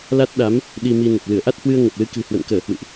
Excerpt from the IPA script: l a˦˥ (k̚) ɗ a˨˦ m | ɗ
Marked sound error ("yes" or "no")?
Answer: yes